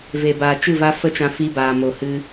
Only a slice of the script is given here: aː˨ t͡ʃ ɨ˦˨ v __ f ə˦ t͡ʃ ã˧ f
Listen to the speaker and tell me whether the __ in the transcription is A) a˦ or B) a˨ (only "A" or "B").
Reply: A